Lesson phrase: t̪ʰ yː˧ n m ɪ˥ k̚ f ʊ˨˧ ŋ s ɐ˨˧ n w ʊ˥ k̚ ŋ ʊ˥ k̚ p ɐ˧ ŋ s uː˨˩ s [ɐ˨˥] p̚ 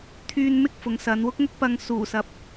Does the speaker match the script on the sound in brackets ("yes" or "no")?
no